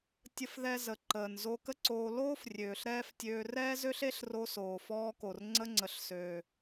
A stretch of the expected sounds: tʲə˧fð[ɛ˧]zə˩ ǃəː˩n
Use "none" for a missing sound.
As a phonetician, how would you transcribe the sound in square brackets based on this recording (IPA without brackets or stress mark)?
ɛ˧